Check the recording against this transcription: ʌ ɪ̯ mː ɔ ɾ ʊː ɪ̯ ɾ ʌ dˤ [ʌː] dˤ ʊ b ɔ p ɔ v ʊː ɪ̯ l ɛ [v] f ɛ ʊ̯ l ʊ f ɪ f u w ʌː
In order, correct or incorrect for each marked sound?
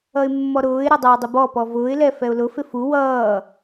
correct, incorrect: none

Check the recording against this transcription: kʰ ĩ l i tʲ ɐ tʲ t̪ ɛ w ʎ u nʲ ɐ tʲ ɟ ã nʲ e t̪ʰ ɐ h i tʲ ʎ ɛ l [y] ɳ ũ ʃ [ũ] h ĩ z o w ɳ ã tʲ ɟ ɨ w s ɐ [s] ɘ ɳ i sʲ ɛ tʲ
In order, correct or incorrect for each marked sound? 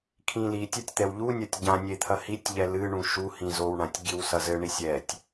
incorrect: ɨ, incorrect: u, incorrect: z

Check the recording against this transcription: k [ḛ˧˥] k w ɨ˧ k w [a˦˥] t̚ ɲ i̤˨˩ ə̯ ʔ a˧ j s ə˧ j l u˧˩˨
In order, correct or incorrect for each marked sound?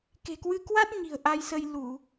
incorrect: e̤˨˩, correct

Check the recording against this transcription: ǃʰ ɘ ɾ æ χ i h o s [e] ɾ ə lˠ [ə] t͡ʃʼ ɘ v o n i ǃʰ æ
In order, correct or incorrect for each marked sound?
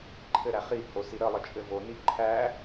incorrect: i, correct

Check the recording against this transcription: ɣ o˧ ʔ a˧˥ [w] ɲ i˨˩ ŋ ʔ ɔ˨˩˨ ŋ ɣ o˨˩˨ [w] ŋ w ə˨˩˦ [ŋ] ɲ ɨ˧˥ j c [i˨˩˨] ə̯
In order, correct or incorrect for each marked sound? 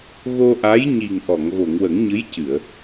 incorrect: j, incorrect: none, correct, incorrect: ɨ˨˩˨

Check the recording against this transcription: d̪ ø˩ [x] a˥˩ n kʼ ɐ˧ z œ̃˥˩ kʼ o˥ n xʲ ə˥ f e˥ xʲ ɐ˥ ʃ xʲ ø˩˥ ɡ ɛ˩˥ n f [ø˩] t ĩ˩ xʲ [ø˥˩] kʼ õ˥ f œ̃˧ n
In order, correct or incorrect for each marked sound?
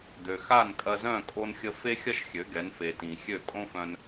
correct, incorrect: e˩, correct

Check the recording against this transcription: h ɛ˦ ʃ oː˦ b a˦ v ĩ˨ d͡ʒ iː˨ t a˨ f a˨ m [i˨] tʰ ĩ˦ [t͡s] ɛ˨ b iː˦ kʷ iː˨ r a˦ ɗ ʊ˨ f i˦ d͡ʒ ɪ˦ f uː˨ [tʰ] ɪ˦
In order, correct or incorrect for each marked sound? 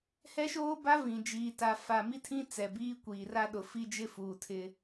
incorrect: i˦, correct, correct

